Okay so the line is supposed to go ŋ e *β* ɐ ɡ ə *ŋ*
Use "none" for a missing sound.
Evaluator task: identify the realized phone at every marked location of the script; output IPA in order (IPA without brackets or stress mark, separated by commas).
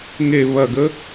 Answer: β, none